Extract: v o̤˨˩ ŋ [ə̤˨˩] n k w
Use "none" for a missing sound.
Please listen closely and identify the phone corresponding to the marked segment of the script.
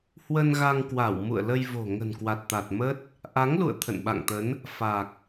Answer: ə̤˨˩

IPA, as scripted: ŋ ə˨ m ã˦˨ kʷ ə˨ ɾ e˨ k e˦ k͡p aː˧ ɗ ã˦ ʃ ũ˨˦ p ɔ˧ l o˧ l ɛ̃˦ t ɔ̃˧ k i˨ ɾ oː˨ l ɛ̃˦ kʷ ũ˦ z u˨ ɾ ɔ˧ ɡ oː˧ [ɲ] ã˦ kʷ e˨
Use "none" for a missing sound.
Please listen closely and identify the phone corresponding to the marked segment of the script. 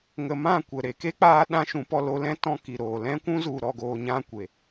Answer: ɲ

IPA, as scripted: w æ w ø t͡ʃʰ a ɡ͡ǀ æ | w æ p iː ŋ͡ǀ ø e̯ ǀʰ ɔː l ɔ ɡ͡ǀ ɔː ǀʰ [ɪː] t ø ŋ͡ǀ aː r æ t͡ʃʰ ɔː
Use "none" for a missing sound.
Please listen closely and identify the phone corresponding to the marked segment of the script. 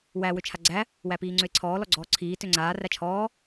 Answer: iː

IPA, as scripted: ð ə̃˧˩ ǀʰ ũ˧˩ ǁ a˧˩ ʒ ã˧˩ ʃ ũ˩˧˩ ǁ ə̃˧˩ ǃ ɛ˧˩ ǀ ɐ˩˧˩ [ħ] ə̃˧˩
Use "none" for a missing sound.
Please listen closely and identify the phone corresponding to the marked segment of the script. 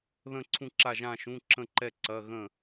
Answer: ɣ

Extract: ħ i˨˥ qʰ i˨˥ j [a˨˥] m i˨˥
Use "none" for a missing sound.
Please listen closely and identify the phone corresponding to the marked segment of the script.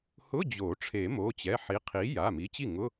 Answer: a˩˧˩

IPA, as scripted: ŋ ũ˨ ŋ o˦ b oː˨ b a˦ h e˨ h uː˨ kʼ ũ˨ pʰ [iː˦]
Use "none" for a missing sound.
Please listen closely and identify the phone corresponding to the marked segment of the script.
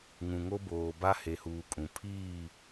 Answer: iː˦˨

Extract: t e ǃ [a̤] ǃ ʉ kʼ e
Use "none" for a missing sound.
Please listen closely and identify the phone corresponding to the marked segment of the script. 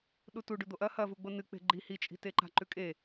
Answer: a̤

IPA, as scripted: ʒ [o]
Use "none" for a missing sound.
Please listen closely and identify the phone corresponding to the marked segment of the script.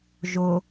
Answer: o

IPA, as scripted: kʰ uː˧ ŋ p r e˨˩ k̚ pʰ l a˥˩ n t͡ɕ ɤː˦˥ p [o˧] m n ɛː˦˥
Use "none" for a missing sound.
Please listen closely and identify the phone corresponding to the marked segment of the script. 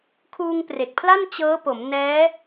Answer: o˩˦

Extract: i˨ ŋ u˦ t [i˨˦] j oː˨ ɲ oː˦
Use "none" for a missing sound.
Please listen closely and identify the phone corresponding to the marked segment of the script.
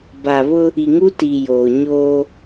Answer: i˨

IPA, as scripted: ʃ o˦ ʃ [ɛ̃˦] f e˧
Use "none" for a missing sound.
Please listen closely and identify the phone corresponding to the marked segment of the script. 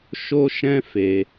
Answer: ɛ̃˦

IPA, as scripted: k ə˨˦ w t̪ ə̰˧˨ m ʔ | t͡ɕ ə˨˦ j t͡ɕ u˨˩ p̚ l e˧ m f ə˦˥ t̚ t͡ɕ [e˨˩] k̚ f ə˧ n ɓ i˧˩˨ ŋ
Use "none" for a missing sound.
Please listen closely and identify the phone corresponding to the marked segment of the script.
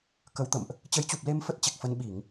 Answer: e˨˩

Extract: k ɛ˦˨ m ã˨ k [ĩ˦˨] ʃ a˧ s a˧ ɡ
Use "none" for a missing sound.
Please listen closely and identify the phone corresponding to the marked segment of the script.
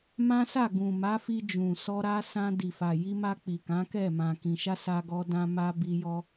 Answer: ĩ˨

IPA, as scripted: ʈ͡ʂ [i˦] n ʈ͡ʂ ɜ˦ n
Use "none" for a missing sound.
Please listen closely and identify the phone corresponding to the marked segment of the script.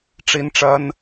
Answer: i˦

